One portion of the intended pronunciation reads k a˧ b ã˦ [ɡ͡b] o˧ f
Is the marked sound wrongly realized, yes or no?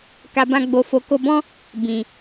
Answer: no